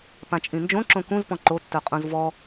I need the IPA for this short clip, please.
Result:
p ã t͡ʃʼ ĩ n d͡ʒ õ ǁ õ k ũ z p ɔ̃ ǃ o tː œ qʼ ũ z v ɔ

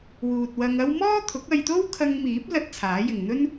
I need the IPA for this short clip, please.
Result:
w uː˨ t̚ w ɐ˧ ŋ ɐ˥ w m ɔː˥ t̪ʰ ʊ˨˥ k̚ ɐ˧ j t̪ o˥ w kʰ ɐ˧ ŋ m iː˨˥ p̚ l ɐ˥ t̚ t͡sʰ aː˨˥ j ɪ˨ ŋ n̪ ɵ˥ n

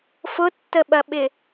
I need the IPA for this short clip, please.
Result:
f ʊ tː ə ɓ ɐ ɓ ɪ

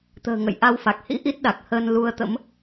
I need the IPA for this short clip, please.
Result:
t̪ ə̤ː˨˩ ŋ ə̰˧˨ j ʔ a˨˦ w f a˨˩ k̚ h ḭ˧˥ ʔ i˦˥ t̚ ɗ a˨˩ k̚ h əː˧ n l u˧ ə̯ t̪ ə̰˧˥ m

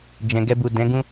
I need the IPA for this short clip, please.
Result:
d͡ʒ ɛ̃˨ ɡ ɛ˧ b u˨ d ɛ̃˨˦ ɡ ũ˦

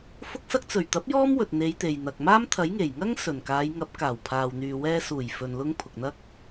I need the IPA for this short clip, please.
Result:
f ʊ˧ k̚ s ɐ˧ k̚ t͡s ɵ˨˩ ɥ t̪ ɐ˨˥ p̚ j ɔː˥ m w ɵ˨ t̚ n̪ e˨˧ j t̪ e˨ j n̪ ɐ˨ k̚ m aː˥ m t̪ʰ ɐ˨˥ j ŋ e˨˩ j ŋ ɐ˥ ŋ s ɵ˨˩ n k aː˨˧ j ŋ ɐ˨˥ p̚ k aː˨˩ w pʰ aː˨ w n̪ yː˨ w ɛː˧ s uː˨˩ j f ɵ˨ n l ʊ˧ ŋ pʰ ʊ˨ k̚ n̪ ɐ˥ k̚

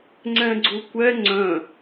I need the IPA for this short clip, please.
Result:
ŋ͡ǀ ɛ̃ ɡ͡ǀ u kʷ ɛ ŋ͡ǀ œ̃

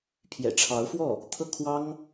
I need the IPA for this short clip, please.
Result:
pʰ j ɛ̰˨˩ ʈ͡ʂʰ ɑ˧˥ ʊ̯ f w ɔ˥˩ | t̪ʰ ɤ˥ kʰ w ɑ˥ ŋ

